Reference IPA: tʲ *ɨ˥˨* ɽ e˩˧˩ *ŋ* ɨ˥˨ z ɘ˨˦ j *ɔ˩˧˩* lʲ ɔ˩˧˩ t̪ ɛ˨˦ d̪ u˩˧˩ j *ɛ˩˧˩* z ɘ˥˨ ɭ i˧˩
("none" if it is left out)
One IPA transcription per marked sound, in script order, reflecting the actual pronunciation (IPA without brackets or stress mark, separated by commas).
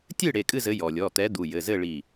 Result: ɨ˥˨, kʼ, ɔ˩, ɘ˩˧˩